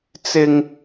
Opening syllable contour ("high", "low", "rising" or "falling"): high